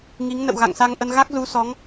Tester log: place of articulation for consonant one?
velar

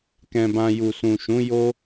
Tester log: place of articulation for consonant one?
velar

